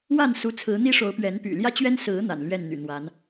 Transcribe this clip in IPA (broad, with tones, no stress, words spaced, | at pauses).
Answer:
wa˥˨nsu˨˦ t͡sʰɹ̩˨˦n̪i˦ʂo˨˦ʊ̯pɥɛ˨˦n py̰˨˩ ljä˦t͡ɕɥɛ˦n sɹ̩˨˦ n̪a̰˨˩nlɥɛ˥˨nn̪y̰˨˩n̪wa˨˦n